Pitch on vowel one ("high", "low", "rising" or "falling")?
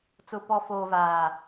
low